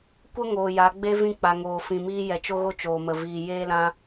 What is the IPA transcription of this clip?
kʷ ə˦ ŋ oː˨ j a˨˦ ɡ͡b e˦ v ĩ˧ k͡p a˨ ŋ oː˨ f ĩ˨ m iː˧ j ɛ˨ t͡ʃ o˦ ɣ o˦ t͡ʃ oː˨ m ə˨ v iː˨ j eː˦ l ã˧

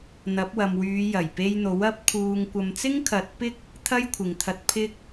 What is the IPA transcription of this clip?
n̪ ɐ˨˥ p̚ w ɐ˨ m w yː˨˧ j ɐ˨˩ j p e˧ j n̪ o˨˥ w ɐ˧ p̚ kʰ uː˨ ŋ kʷ ɐ˨ m t͡s ɪ˥ ŋ kʰ ɐ˨˥ t̚ p ɪ˥ k̚ | t̪ʰ ɐ˥ j kʷʰ ɪ˨ ŋ t̪ʰ ɐ˧ t̚ pʰ ɪ˥ k̚

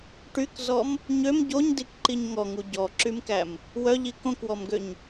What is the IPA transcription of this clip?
ʈ y k z ɔ m | ɲ ø m ɟ o ɲ d i k ǃ i ɲ ŋ ɔ ŋ u ɟ ɔ ǁ y m k æ m | w œ ʎ i k õ k w ɔ m ɡ ø ɲ

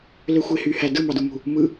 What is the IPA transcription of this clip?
l ø xʷ e h y h æ d ɯ m ɑ d u m ṳ | m ɯ

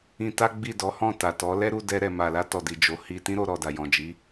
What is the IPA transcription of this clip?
ĩ˧ t a˦ ɡ͡b i˦˨ d ɔ˨˦ h ɔ̃˦˨ t a˨ t ɔ˨˦ l ɛ˦ ɾ u˧ d ɛ˧ ɾ ɛ˨ m a˨ l a˧ t ɔ˨ d i˨ d͡ʒ o˨ h i˧ t ĩ˦ ɾ o˧ ɾ ɔ˨ d a˨ j ɔ̃˨ d͡ʒ i˨˦

